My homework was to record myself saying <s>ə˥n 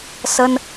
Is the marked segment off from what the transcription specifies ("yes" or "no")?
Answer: no